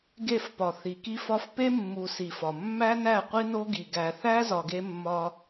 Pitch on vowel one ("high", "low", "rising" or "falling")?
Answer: falling